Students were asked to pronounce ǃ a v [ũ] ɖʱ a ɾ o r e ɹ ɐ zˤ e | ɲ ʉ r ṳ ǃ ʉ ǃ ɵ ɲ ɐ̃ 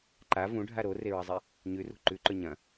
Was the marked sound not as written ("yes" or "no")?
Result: no